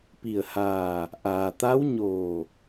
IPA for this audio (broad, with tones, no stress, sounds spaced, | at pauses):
p i˧˩ ə̯ h aː˧˩ | ʔ aː˩ t̪ a˧˥ w ɲ oː˧˩